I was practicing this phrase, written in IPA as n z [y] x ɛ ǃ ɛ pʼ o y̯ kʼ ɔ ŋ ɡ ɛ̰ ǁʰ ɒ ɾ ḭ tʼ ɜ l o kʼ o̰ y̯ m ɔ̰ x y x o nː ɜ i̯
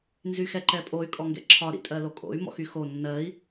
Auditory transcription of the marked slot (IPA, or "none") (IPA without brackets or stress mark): y